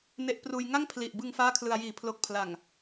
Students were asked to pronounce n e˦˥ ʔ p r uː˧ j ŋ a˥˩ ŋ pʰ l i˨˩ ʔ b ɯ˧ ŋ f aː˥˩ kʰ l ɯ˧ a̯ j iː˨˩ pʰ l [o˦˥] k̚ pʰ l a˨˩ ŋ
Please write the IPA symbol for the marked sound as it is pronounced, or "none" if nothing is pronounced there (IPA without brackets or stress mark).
o˦˥